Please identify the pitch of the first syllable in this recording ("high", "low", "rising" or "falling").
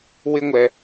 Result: high